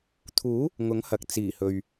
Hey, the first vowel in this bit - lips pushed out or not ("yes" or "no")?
yes